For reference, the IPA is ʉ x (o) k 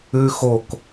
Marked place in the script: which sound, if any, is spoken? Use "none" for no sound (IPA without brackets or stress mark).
o